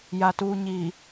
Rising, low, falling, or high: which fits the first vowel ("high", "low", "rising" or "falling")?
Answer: low